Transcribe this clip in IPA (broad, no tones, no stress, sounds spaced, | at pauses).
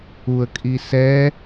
u ə̯ kʼ i s ɛ